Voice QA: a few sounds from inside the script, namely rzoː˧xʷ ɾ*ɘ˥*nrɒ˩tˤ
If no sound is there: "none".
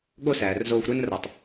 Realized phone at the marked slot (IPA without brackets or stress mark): e˥